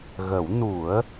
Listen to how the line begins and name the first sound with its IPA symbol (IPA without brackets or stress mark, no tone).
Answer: ɣ